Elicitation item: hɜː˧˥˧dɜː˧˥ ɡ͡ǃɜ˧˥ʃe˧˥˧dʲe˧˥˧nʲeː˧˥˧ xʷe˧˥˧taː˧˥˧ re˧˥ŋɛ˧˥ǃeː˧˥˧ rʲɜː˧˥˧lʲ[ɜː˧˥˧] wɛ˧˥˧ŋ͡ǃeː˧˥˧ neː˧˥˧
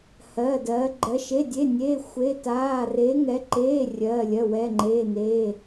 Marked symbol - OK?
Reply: no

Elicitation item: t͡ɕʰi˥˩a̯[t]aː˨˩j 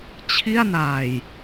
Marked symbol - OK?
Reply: no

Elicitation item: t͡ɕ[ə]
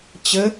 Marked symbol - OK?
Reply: yes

